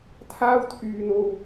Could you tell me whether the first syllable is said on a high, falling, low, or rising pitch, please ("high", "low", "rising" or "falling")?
high